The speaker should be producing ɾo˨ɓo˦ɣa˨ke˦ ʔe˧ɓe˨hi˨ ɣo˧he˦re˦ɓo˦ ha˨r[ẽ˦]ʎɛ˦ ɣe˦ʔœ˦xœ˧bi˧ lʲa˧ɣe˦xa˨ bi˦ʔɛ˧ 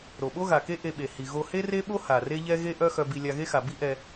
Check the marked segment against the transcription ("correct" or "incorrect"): incorrect